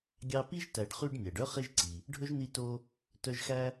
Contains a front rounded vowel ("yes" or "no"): yes